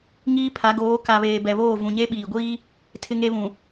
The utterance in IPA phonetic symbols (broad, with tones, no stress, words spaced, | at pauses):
ŋiː˦pʰa˨˦ɡoː˨˦ ka˨βeː˨ bɛ˨βoː˦˨vũ˨ɲe˦ ɓiː˨ɡʷiː˦ | tʰɪ˦ŋe˦βũ˨